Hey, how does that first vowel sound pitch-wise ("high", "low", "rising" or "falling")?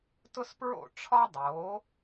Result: high